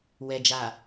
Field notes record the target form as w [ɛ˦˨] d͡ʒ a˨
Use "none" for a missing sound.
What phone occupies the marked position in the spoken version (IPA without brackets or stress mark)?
ɛ˨